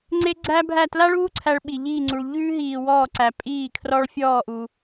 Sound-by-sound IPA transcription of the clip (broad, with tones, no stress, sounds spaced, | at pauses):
ŋ͡ǀ e˥ ɡ͡ǀ æ˥ bʱ æ˥˧ t l a˥ ɭ uː˥ ǀʰ æ˥ ɭ ɓ i˧ ʎ iː˥˧ ŋ͡ǀ u˧ ɭ ʎ ʉː˥ ɦ iː˧ w ɔː˥˧ ǀ æ˧ pʼ iː˥˧ kʰ r ɔ˥ ɭ fʲ ɔː˥˧ ʔ u˧